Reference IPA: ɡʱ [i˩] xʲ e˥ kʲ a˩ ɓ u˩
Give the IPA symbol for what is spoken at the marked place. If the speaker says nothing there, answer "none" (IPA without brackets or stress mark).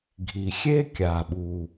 i˩